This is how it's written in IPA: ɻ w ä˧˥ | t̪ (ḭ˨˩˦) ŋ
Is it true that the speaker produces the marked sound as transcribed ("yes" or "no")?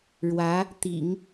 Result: yes